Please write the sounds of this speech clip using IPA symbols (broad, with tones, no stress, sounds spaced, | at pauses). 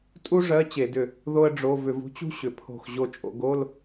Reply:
tʼ u˥ ʐ ɜ˧˥˧ t͡ɕ e˧˩˧ d ʏ˧˩ | ð o˥ ə̯ ɖ͡ʐ o˧˥˧ v ʏ˧˩˧ v ṳ˥ t͡ɕ ṳ˥ ɕ ʏ˩˧ pʰ o̤˧˩ x ʑ o˧˩ t͡ʃʼ o̰˩˧ ɡ o˧˥˧ l